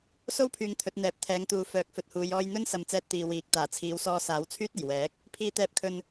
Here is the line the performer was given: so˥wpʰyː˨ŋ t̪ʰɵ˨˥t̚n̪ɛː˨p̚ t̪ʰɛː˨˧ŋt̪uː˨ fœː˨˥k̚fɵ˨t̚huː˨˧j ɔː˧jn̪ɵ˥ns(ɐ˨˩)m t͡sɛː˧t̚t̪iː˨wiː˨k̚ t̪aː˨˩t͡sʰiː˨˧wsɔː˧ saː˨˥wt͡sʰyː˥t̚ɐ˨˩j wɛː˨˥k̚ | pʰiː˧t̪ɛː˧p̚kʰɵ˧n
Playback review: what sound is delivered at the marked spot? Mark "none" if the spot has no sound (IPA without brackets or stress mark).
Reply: ɐ˨